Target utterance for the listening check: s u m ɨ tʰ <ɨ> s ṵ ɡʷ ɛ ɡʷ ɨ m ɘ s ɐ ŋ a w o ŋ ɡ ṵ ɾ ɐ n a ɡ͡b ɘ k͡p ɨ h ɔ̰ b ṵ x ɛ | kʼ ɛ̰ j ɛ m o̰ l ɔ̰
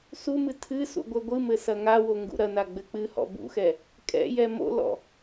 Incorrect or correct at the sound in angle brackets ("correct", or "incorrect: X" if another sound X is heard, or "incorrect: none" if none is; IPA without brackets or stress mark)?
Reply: correct